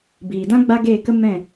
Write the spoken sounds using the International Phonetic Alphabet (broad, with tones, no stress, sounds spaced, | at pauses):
b iː˨ d ã˦ ɡ͡b a˦ ɡ eː˦˨ k ə˦ m ɛ̃˦˨